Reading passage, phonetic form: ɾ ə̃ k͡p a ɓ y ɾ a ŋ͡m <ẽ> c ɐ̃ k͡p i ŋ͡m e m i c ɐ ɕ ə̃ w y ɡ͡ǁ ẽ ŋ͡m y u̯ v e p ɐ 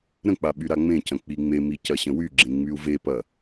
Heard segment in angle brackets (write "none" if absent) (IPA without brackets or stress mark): ẽ